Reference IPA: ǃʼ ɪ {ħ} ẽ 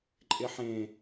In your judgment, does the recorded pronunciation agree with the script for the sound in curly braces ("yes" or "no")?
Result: yes